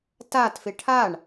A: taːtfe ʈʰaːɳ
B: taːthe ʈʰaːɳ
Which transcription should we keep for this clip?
A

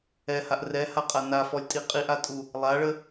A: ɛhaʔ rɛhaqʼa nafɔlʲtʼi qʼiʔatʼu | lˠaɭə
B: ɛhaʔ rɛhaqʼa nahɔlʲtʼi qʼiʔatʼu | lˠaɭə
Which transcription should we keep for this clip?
A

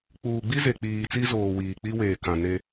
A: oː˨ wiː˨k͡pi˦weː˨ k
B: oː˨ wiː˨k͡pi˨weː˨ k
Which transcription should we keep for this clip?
A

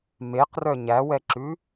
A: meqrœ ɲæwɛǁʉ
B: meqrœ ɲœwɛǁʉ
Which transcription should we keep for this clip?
A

